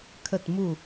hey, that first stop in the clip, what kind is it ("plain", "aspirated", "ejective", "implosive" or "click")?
aspirated